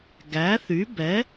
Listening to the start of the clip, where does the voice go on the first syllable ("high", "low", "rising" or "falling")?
rising